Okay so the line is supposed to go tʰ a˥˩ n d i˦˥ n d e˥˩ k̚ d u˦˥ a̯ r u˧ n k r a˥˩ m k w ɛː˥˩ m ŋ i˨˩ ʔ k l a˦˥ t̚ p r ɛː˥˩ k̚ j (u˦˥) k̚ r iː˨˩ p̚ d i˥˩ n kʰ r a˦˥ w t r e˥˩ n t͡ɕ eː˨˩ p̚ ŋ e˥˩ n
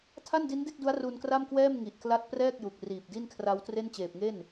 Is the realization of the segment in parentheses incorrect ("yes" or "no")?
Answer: yes